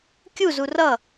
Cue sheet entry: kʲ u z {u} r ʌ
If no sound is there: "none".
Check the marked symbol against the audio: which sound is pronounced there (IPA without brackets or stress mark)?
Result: u